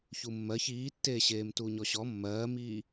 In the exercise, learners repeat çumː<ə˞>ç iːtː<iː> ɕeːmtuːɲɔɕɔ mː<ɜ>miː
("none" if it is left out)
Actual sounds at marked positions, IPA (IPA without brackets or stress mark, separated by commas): ɜ, eː, ɜː